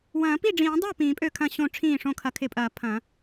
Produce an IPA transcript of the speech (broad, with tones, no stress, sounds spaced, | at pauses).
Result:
w ɐ̃ː˨˩˦ p i˥˩ ɖ͡ʐ ĩː˨˩˦ dˤ o˥˩ p ĩː˨˩˦ pʼ ø˥˩ kʰ ɐ̃˥˩ ɕ õ˥˩ ʈ͡ʂʰ ĩː˥˩ ʂ õ˥˩ kʰ ɐ˨˩˦ kʰ ɪ˨˩˦ pʼ ɐː˨˩˦ pʰ ɐ̃˨˩˦